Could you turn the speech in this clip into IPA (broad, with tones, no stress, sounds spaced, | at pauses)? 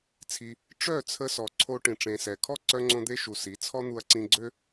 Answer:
t͡sʰ i˧ | ʈ͡ʂ œ˦˨ t͡sʰ ə˧ s ɔ˨ ǀʰ o˦ ʈ ĩ˨ ʈ͡ʂ ẽ˨ s ɛ˨ kʰ ɔ˦ ǀ œ˧ ŋ͡ǀ õ˧ d̪ e˧ ʃ u˨ s i˨˦ t͡sʰ ɔ˦ n̪ u˧ ɐ̯ ǀ ĩ˧ ɡ͡ǀ ø˦